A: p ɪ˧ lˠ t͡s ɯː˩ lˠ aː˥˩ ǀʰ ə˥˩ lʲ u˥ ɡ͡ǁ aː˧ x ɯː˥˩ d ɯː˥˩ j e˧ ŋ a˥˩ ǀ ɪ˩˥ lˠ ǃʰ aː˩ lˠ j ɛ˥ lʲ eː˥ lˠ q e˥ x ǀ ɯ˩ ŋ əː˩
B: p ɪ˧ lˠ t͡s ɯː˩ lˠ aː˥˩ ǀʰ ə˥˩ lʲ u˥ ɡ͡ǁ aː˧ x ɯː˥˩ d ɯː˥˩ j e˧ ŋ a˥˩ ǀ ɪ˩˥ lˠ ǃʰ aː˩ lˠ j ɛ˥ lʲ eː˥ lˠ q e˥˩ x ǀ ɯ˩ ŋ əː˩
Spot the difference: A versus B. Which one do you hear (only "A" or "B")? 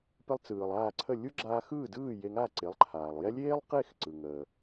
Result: B